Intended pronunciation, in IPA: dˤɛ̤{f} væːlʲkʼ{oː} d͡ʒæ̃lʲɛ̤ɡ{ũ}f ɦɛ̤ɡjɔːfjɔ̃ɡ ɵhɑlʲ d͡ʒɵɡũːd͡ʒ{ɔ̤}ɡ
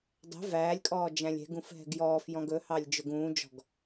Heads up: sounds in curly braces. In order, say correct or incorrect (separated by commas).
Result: incorrect, incorrect, correct, correct